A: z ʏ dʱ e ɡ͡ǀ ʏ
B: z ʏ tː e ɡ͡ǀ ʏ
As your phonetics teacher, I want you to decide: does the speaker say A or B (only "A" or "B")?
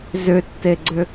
B